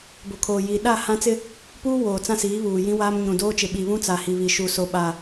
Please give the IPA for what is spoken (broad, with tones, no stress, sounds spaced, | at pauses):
b o˨ kʰ oː˨ j iː˨ ɗ a˦˨ h ã˦ t͡s ɪ˦ | p uː˦ w oː˨ t͡s ã˦ s iː˨˦ β uː˨ j ĩ˦ w aː˦ m ɲ ũ˨ d oː˦ t͡ʃ ɪ˨ ɓ i˨ β ũ˦ t͡s a˨ h i˨ β i˨ ʃ u˨ s o˨ ɓ a˨